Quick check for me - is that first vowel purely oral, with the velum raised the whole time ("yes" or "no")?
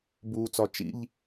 yes